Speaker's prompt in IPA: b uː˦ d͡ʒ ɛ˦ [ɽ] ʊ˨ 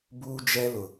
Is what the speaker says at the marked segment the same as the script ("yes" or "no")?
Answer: no